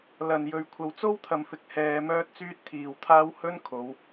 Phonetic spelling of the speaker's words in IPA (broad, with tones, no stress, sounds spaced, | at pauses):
l ɐ˨ n j ɵ˨˧ ɥ kʷʰ ɐ˨˧ w t͡s o˥ w t̪ʰ ɐ˨ m f ɪ˨˥ k̚ h ɛː˧ m œː˥ t̚ t͡s yː˥ t̚ t̪ʰ iː˨ w t̪ʰ aː˥ w h ɵ˥ n kʰ o˨˧ w